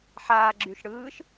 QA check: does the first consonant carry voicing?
no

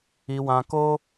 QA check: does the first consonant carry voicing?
yes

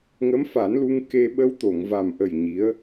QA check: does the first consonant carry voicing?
yes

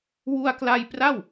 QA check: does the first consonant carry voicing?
yes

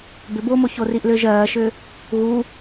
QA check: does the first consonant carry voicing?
yes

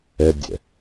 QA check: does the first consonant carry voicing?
yes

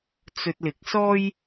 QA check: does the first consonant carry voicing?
no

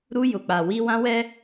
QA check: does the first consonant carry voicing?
yes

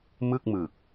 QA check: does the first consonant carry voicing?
yes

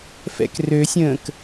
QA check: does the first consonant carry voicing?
no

